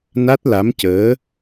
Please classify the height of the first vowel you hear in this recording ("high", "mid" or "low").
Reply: low